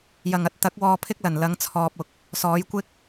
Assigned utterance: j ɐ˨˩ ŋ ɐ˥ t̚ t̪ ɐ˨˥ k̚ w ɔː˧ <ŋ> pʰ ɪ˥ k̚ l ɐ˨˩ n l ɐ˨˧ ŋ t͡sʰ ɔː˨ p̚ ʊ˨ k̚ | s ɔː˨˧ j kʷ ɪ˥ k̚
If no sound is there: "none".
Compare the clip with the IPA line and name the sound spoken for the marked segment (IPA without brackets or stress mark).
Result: none